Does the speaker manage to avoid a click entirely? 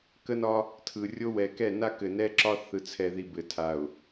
no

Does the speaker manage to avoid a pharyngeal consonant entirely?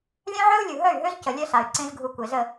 no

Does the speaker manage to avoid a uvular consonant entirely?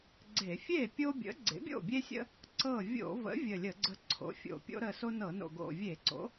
yes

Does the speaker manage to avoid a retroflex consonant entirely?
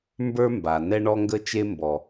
no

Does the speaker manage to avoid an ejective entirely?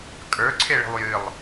no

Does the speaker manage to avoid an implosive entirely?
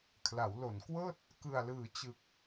yes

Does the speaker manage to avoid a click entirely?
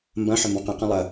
yes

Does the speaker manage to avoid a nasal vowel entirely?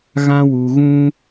no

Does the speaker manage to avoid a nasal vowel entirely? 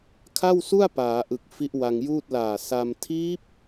yes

